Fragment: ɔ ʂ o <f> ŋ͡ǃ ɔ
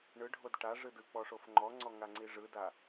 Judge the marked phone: correct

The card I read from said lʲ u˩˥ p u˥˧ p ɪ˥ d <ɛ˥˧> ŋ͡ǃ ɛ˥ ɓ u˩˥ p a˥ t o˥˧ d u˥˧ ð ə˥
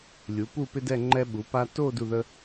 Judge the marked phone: correct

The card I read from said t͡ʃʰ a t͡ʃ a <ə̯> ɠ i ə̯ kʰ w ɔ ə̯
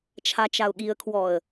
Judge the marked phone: incorrect: ʊ̯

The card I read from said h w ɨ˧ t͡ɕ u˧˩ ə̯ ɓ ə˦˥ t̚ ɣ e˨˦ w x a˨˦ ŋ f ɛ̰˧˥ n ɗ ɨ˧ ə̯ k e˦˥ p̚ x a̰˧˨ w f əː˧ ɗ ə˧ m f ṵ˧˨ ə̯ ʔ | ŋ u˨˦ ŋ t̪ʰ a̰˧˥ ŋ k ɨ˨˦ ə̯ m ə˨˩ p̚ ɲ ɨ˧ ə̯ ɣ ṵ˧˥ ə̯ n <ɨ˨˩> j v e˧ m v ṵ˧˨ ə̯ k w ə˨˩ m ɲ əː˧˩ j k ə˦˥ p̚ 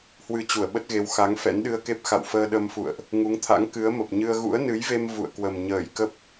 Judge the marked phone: incorrect: ɨ˨˦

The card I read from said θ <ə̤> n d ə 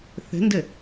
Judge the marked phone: correct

